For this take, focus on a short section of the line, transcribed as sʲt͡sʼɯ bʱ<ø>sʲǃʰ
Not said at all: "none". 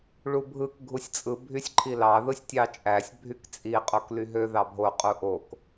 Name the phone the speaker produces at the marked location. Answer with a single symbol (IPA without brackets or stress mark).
y